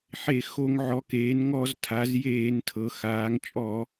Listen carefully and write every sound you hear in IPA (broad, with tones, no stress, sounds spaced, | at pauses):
ħ e˧˩˧ x o˧˩˧ ŋ ʕ ɔ˩˧ k eː˩˧ n ŋ ɔ˧˩˧ z tʰ a˩˧ z j eː˧˩˧ n tʰ ɤ˩˧ x aː˩˧ ŋ t͡ʃʼ ɔ˧˩˧